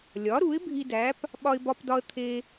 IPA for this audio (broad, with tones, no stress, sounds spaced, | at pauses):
lʲ ɒ˩˥ ɾ u˩˥ ɪ̯ bʱ i˧ d æ˩˥ p | ɓ ɒ˧ ɪ̯ b ɒ˧ p d ɒ˧ ə̯ t̪ʰ e˧